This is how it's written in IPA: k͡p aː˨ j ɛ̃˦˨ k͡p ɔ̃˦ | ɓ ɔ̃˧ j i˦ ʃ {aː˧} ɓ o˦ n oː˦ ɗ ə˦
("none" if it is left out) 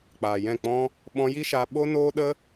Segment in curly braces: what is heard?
aː˧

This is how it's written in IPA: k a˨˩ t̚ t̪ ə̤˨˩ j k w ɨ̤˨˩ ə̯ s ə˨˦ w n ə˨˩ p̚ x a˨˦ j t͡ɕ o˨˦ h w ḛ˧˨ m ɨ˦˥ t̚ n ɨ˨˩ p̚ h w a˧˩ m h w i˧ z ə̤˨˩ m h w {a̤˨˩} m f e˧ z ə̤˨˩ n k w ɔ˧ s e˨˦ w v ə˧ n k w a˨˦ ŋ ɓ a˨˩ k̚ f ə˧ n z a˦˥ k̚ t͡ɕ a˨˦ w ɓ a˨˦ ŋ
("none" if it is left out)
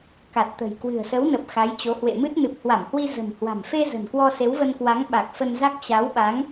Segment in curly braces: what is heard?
a̤˨˩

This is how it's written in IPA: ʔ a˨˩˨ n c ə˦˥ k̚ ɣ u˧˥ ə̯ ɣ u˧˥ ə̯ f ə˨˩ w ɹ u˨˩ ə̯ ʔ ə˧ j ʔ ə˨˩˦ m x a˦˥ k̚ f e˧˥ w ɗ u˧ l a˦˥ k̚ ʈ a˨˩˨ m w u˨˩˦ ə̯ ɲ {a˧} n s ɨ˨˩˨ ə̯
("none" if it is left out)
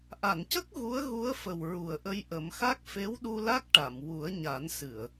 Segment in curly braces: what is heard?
a˨˩˦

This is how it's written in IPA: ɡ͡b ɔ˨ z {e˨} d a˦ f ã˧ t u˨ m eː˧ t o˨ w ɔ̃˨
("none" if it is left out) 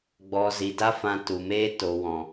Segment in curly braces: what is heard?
i˨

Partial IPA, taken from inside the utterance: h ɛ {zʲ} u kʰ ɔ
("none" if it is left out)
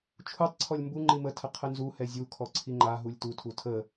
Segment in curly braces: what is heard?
zʲ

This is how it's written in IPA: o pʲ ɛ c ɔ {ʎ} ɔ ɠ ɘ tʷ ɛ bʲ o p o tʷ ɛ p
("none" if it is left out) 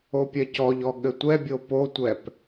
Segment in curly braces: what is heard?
ʎ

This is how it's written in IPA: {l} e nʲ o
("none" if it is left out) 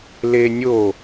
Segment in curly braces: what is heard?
l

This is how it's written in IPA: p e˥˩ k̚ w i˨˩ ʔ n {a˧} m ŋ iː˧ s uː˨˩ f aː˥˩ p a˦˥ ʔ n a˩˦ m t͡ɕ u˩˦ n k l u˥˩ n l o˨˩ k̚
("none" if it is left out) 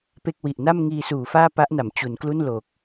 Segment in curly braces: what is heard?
a˥˩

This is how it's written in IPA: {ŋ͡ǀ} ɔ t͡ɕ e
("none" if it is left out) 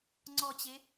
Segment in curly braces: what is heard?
ŋ͡ǀ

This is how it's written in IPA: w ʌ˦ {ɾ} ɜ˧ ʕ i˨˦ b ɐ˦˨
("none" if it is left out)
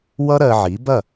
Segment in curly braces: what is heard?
ɾ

